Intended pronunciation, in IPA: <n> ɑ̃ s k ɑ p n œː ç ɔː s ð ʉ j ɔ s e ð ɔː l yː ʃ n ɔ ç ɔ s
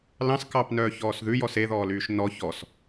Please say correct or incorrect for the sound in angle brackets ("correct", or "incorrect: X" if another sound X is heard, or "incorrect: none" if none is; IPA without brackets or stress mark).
incorrect: l